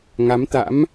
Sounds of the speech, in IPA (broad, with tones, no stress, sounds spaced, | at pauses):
ŋ a˨˦ m t̪ a̰˧˥ m